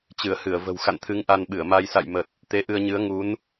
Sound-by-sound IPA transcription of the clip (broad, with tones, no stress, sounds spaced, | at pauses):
t͡ɕ ɨ˧˩ ə̯ h ɨ˧˩ ə̯ v ə̤˨˩ w x a̰˧˨ n t̪ʰ ɨ˨˦ ŋ ʔ a˧ n ɓ ɨ˧˩ ə̯ m a˧ j s a̰˧˨ j m ə˨˩ t̚ | t̪ e˨˦ ʔ ɨ˧ ə̯ ɲ ɨ˨˦ ə̯ ŋ u˨˦ n